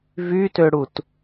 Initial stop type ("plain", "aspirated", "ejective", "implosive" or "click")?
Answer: plain